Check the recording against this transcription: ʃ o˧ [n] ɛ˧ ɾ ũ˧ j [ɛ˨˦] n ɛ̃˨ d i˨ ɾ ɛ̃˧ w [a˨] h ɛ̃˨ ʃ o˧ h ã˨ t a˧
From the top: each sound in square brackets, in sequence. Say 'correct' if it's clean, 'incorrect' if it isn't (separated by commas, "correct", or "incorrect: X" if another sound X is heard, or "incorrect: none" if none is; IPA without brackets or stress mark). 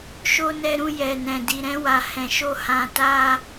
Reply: correct, incorrect: ɛ˨, correct